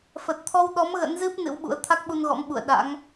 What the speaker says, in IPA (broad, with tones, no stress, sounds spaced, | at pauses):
f ə˨˩ t̚ t̪ʰ ɔ˧ w ɗ ɔ˨˦ m ɣ ə̰˧˥ n z ɨ˦˥ p̚ n ɨ̰˧˥ w ɓ ṵ˧˥ ə̯ t̪ʰ a˦˥ k̚ ɓ u˧ n ɣ ɔ̰˧˥ m ɓ ṵ˧˨ ə̯ ɗ a̰˧˥ ŋ